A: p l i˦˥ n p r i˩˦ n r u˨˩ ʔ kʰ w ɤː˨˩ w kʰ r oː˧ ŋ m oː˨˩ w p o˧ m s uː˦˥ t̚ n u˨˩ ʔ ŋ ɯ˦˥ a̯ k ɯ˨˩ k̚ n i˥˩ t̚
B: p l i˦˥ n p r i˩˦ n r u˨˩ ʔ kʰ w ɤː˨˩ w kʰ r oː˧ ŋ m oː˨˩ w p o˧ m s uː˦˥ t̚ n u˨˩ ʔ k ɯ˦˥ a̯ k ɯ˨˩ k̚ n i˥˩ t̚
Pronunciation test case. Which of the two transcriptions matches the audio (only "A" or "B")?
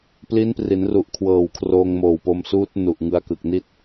A